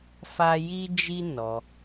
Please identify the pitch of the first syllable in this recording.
high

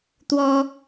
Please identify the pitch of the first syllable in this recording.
high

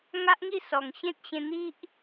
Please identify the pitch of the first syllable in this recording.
high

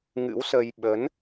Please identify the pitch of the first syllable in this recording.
rising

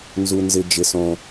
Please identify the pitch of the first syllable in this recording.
low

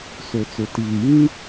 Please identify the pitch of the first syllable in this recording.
low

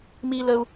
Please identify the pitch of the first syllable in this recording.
high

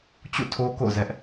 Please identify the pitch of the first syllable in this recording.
falling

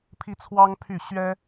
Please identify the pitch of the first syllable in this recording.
high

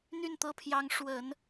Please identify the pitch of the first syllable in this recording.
falling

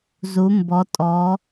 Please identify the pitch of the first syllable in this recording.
rising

